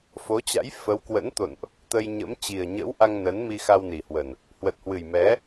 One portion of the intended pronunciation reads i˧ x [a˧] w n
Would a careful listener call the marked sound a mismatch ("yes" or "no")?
no